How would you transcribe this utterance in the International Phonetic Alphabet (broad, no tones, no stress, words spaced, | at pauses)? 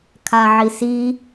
kʰaʕisi